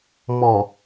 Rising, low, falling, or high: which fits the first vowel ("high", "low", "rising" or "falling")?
low